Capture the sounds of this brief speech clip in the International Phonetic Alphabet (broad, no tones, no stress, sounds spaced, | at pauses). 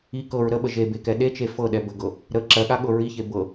i k ɤ ɹ ɾ ə ɓ ə ʒ e b e k ɛ ɗ e t͡ʃ e f ɤ ɗ ɛ b ə ɡ ɤ | ɾ ə ǁ ɜ ɠ a ɠ ɤ ɹ i ç e b ɤ